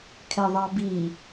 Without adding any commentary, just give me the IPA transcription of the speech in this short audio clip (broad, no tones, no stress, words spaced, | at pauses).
kʰɛðˤɑbi